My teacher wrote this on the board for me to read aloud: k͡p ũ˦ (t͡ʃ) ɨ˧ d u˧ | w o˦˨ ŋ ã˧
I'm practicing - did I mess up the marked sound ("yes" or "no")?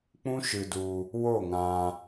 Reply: yes